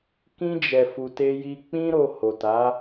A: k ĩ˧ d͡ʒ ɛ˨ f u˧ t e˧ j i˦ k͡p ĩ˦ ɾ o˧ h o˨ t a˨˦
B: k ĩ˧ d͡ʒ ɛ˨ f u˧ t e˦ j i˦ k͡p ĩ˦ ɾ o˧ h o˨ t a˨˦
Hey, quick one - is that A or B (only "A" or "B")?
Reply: B